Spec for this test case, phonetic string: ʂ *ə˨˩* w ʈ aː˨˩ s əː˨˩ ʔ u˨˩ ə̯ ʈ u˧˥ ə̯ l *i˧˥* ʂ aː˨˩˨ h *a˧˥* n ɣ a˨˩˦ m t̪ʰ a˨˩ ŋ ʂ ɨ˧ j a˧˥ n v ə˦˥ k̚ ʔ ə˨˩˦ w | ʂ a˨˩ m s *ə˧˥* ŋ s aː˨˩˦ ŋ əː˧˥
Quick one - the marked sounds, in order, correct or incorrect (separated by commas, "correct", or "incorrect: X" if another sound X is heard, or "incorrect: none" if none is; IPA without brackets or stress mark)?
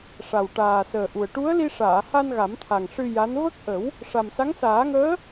incorrect: a˨˩, incorrect: i˧, incorrect: a˧, incorrect: a˧˥